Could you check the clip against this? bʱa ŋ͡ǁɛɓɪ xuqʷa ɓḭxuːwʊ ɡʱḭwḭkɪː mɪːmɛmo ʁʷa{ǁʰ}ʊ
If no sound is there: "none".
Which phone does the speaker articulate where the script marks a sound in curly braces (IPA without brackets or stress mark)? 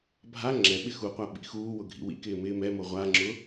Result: ŋ͡ǁ